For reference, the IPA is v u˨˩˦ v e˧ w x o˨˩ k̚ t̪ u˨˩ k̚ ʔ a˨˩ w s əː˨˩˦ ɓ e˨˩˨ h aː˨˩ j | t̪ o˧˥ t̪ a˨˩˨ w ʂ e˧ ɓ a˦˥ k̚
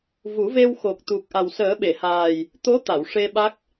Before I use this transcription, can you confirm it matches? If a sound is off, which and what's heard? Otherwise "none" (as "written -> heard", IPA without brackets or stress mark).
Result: none